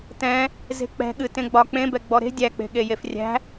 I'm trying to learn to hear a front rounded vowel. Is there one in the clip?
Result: no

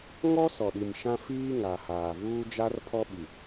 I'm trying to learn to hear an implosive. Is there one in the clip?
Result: yes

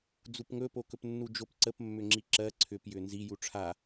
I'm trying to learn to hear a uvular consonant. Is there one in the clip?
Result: no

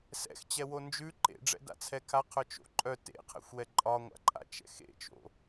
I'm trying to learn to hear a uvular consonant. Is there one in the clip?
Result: yes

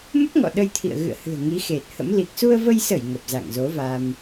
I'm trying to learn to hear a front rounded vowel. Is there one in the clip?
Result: no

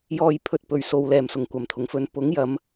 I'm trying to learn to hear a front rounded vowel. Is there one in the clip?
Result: no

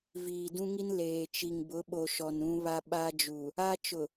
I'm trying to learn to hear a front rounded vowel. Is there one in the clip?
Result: no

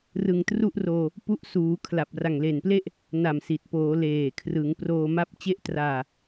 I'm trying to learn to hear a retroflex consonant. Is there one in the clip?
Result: no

